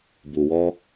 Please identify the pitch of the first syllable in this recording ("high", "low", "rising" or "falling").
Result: low